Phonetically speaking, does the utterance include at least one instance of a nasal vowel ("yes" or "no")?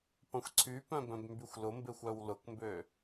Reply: yes